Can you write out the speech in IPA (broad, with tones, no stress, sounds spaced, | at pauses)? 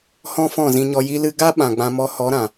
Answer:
h ɔ̃˦ f ɔ̃˦˨ z ĩ˧ ɲ ɔ˧ j i˧ l ɨ˧ ɡ a˦ ɓ ã˨ ɡ͡b ã˧ m ɔ˧ h ɔ˨˦ ɾ ã˨